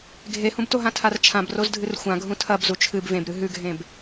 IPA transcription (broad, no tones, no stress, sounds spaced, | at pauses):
ɡʱ e h ũ b t o ɦ ã tʰ a r t͡ʃʰ ã b r o z dʱ ɨ r xʷ ã ɡʱ ũ tʰ ɐ b z u t͡ʃʰ ɨ b v ẽ b ɾ ɨ ɦ ʉ ɡʱ ẽ b